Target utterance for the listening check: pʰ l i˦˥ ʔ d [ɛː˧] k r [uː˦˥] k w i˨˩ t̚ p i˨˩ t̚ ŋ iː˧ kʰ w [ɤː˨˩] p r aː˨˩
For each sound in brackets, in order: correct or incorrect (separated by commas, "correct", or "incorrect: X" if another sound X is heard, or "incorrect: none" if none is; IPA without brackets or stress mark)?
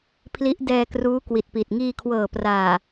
correct, correct, correct